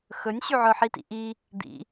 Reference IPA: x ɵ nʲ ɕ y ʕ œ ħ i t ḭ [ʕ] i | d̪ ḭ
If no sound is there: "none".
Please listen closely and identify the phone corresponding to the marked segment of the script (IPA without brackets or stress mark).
ʔ